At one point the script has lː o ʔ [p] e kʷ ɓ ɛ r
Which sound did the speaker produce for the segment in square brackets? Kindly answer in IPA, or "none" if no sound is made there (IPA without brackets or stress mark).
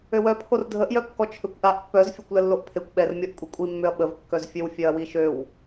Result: pʰ